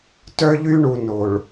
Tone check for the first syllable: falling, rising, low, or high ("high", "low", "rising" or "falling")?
high